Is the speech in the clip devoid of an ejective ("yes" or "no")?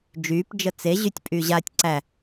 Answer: no